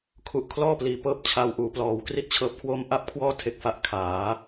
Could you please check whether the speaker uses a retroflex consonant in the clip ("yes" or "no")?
no